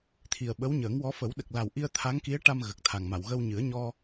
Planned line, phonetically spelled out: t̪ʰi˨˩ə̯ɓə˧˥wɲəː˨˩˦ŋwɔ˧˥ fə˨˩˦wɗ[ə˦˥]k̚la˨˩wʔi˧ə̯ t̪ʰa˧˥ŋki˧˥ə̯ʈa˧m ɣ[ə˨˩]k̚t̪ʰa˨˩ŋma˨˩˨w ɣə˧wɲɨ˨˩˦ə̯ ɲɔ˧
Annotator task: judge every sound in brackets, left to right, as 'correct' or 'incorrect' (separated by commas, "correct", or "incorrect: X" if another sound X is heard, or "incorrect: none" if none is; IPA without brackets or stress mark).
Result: incorrect: ə˨˩, correct